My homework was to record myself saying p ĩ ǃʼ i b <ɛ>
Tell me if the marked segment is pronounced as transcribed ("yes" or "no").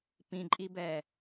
yes